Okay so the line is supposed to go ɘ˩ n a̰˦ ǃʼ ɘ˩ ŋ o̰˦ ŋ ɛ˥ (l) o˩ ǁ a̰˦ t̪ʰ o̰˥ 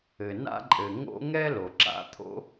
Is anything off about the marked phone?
no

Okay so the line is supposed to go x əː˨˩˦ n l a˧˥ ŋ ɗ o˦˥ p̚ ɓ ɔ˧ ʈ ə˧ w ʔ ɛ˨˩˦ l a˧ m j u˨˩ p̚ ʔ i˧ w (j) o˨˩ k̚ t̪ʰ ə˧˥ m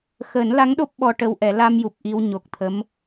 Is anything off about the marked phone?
yes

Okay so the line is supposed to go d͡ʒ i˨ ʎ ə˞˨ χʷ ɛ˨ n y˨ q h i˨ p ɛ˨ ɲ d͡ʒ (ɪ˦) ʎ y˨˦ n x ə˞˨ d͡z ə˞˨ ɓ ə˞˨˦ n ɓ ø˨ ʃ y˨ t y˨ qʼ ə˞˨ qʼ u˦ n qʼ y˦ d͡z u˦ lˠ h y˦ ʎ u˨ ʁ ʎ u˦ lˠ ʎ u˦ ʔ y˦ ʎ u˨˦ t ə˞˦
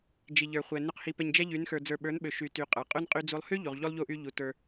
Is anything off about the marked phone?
yes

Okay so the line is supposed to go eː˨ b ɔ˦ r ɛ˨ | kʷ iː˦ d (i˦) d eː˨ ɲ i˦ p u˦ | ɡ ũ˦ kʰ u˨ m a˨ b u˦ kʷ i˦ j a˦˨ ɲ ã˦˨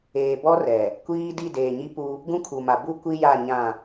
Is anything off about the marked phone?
yes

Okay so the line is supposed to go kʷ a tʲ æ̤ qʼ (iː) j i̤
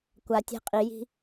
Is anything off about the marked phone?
yes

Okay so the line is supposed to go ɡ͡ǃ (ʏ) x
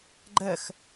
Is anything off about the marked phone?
yes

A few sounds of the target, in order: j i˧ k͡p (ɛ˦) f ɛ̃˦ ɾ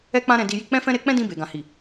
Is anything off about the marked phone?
yes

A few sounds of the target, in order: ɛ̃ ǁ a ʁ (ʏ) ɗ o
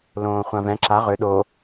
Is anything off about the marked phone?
no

